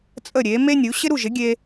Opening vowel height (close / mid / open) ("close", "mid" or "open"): mid